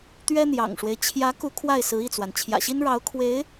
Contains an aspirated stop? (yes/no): yes